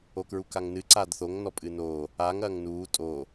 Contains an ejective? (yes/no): yes